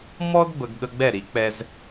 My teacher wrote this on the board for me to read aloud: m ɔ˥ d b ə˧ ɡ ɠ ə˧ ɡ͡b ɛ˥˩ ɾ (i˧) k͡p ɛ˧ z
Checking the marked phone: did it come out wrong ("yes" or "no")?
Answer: yes